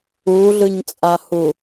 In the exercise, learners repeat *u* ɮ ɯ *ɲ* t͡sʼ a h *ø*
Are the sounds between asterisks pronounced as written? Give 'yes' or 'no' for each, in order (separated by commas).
yes, yes, no